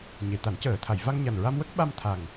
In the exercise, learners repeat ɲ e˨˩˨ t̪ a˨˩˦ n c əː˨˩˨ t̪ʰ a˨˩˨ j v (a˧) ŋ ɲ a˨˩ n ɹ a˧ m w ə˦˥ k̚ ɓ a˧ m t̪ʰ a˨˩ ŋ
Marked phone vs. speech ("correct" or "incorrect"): correct